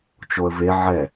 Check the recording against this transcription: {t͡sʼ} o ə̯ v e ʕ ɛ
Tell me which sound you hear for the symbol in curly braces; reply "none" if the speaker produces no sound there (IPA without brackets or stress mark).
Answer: t͡ʃ